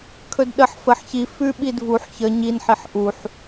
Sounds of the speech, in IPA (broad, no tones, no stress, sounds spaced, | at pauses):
kʰ ɵ d ɗ ə ħ f ə ħ ç i f ʉ ɓ i d v u ħ ç ə ɲ i n ħ i ħ ʔ u ħ